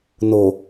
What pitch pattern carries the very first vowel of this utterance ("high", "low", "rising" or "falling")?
low